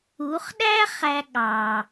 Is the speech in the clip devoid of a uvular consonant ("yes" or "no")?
no